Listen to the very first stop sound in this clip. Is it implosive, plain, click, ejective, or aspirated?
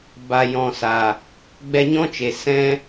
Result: plain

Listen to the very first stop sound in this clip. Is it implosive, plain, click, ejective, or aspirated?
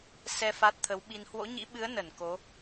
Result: plain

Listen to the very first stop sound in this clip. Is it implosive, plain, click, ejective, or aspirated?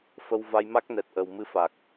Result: plain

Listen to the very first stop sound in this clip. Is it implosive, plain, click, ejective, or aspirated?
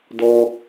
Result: plain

